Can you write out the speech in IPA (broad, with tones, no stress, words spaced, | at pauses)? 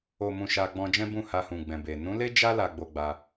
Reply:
o˨mũ˨ ʃa˧ɡ͡bɔ̃˧ d͡ʒɛ̃˦bũ˦˨ha˧hũ˨ ɡ͡bɛ̃˨be˨ nũ˨˦le˦ d͡ʒa˦ la˧ɡ͡bo˧ɡ͡ba˧